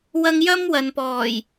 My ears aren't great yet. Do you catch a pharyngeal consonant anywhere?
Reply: no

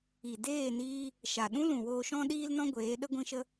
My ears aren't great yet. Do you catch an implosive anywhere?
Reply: yes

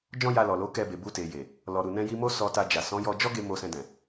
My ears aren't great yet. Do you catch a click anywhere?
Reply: no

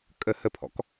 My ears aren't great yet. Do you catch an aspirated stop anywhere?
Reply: yes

